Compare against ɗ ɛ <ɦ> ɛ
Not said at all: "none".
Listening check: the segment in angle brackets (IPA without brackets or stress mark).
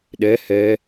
h